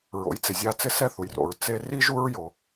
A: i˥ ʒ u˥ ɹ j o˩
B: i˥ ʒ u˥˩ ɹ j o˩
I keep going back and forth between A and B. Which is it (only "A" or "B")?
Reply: A